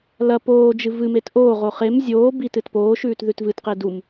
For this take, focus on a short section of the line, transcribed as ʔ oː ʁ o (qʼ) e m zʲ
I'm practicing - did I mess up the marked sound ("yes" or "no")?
yes